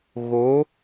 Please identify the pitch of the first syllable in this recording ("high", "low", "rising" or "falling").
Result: rising